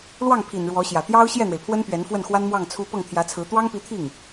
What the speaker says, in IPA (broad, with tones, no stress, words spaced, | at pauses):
lwɑ˥˩ŋpʰi˨˩n ɻwɔ˧˥ɕjä˨˩ t̪jɑ˥ʊ̯ ɕjɛ˥˩n̪we˩ɪ̯pʰwə˥n pɥɛ˧˥n fwə˥˩nxwa˥n mwɑ˥˩ŋt͡sʰu˥ pɤ˥˩ŋt̪ʰjä˧˥t͡sʰɹ̩˧˥ t̪wɑ˥ŋpi˧˥t̪ʰi˥˩ŋ